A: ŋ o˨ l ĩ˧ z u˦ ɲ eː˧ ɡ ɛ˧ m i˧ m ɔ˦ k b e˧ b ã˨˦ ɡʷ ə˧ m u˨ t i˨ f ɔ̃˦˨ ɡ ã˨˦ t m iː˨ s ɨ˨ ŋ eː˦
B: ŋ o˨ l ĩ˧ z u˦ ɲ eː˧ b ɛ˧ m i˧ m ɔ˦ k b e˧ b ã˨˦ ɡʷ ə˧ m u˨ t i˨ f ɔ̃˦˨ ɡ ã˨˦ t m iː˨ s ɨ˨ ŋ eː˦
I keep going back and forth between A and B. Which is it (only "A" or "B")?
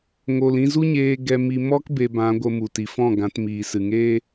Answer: A